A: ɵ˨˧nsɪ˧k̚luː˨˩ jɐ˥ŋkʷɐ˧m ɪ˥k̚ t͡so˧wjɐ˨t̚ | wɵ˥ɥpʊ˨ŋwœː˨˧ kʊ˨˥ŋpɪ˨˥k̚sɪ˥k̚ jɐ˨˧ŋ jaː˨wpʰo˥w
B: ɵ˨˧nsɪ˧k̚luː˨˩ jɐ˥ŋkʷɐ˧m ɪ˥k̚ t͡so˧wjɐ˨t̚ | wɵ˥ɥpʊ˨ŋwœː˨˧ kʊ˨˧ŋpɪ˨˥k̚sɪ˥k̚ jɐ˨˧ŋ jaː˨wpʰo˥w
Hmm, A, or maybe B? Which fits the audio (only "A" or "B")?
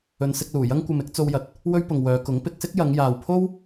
A